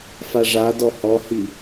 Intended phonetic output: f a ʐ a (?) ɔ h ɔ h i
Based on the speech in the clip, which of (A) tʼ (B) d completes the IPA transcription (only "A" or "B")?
B